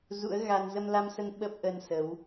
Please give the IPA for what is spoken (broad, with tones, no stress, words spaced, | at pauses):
zṵ˧˥ə̯ɣa˧n zə˧mla˧msə˧n ɓə˦˥p̚ʔə˧n sə˨˦w